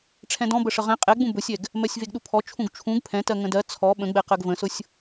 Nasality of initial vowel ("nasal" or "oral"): nasal